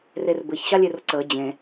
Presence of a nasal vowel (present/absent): present